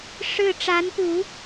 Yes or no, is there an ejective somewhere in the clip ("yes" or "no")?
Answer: no